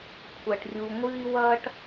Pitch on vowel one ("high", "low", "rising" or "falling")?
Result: low